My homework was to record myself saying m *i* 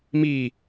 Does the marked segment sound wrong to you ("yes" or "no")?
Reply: no